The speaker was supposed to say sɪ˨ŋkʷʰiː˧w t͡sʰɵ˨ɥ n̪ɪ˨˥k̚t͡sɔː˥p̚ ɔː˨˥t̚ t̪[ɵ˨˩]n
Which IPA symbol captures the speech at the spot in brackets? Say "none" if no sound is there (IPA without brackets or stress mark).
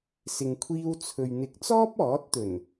ɵ˨˩